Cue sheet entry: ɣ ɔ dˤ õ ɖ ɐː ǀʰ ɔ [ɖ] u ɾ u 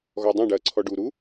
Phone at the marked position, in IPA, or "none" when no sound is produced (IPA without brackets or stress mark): ɖ